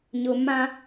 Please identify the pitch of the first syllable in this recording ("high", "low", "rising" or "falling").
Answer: low